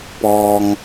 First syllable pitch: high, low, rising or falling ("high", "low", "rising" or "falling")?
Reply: low